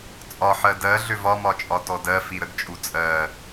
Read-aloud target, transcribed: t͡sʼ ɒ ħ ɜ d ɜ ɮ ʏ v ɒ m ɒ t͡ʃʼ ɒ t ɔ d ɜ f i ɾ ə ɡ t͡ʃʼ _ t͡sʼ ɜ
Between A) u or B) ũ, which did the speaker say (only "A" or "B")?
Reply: A